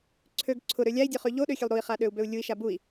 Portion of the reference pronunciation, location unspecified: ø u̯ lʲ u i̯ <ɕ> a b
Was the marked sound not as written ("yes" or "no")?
yes